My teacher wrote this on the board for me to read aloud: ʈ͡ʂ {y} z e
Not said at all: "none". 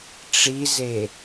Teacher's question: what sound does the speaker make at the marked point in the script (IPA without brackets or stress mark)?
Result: i